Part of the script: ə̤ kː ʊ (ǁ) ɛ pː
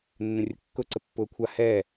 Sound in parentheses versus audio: incorrect: ǀ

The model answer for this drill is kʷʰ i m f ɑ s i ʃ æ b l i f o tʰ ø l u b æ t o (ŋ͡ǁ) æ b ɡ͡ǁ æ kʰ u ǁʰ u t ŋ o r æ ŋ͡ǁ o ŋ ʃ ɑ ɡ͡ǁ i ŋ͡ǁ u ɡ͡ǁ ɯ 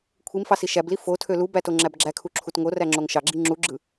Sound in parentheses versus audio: correct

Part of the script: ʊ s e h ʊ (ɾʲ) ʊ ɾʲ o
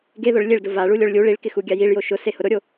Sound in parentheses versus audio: incorrect: ɾ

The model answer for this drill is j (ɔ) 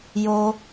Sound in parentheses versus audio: incorrect: o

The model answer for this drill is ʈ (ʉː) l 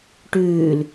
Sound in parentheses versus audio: correct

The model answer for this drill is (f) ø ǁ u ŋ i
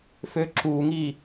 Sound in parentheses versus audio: correct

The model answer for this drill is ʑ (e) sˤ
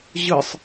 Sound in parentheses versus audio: incorrect: ɨ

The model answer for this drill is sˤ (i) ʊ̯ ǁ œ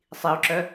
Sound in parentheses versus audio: correct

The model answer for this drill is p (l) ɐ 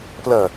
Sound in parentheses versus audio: correct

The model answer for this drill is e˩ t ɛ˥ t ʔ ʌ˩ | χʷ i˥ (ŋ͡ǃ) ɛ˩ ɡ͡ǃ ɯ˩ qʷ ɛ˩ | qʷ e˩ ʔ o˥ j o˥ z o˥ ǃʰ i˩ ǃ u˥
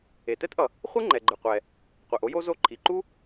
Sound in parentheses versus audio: correct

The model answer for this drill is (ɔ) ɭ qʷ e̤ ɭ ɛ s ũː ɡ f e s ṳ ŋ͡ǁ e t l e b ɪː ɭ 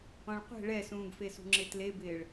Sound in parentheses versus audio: incorrect: ɔ̃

